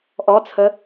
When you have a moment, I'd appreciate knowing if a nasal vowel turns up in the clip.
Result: no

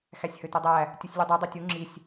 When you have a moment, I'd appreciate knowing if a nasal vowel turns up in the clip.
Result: no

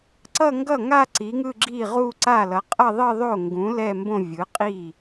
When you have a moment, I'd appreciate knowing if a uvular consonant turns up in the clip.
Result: yes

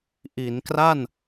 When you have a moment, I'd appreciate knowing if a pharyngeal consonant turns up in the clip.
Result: no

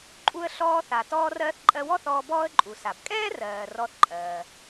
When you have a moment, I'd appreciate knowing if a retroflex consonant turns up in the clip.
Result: no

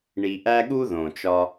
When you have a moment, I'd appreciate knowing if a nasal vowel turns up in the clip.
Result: yes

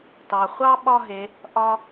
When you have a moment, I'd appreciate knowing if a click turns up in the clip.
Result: no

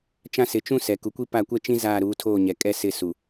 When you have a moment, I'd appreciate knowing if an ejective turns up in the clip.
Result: yes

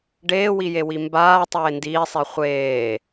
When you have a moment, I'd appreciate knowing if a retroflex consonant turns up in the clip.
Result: yes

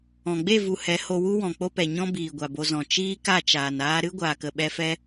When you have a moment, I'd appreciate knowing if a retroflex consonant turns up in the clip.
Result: no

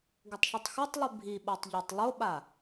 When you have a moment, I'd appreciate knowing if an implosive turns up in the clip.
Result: yes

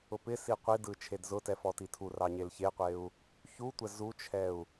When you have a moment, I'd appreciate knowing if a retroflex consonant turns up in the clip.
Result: no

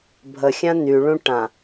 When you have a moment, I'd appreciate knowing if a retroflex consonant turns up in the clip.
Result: yes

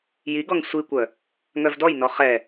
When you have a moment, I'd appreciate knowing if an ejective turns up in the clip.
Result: no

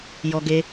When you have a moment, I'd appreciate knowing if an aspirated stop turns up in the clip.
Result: no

